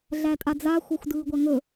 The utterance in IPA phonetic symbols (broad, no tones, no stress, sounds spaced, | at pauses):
ɮ æ tʼ a d͡z a xʷ a xʷ d ɯː ɡʷ a ŋ ɵ